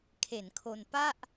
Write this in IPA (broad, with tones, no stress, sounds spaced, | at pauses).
kʰ e˩˦ n kʰ o˧ n p a˥˩ ʔ